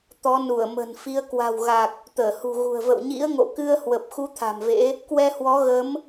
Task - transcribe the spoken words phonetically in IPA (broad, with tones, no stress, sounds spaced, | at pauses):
t̪ ɔ˨˦ n u˧˩ ə̯ m ə̤˨˩ n f i˨˦ ə̯ k w a̤˨˩ w ɣ a˨˩ k̚ | t̪ əː˧˩ h ṳ˨˩ ɣ ṳ˨˩ ə̯ v ə̰˧˨ w ɲ ḭ˧˥ ə̯ ŋ o̰˧˨ k ɨ˧ ə̯ h w ə˨˩ p̚ x u˨˦ t̪ʰ a̤˨˩ m v ḛ˧˥ | k w ɛ˧ h w ɔ˨˦ ɣ ə˨˦ m